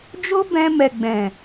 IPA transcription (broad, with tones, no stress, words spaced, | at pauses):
d͡ʒo˦bɛ̃˧mɛ˨ ɡ͡bɛ̃˨